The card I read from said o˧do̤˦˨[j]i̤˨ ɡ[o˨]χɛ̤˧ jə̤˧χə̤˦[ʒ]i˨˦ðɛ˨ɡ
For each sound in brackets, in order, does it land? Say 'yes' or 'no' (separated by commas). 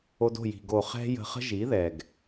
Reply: yes, yes, yes